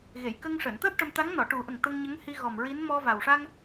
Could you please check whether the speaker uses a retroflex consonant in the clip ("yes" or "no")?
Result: yes